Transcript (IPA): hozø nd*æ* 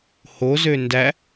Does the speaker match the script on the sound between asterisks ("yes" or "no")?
yes